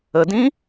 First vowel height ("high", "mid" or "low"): mid